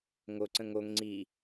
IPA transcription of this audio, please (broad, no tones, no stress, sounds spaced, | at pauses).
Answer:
ŋ o ǀ ə̃ ŋ o ŋ ŋ͡ǀ i